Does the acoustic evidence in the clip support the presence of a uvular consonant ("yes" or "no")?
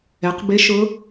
yes